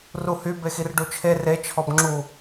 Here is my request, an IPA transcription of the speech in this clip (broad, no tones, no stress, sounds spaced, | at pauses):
r u h y b e x i r ɖ u t͡ʃʰ e r e t͡ʃʰ ɔ b ŋ͡ǁ u